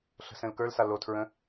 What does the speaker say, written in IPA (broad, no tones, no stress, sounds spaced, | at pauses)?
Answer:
ɬ ə̤ s ɛ̃ l k ə˞ l s a l o tʰ ɹ ə̃